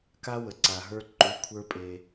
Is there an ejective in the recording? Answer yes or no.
yes